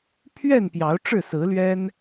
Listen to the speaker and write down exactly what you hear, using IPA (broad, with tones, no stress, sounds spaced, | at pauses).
pʰ ɥ ɛ˥˨ n p j ɑ˨˦ ʊ̯ ʈ͡ʂ ɻ̩˥˨ s ɹ̩˨˦ l ɥ ɛ˦ n